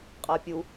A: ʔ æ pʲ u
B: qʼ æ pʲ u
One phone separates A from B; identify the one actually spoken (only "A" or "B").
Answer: B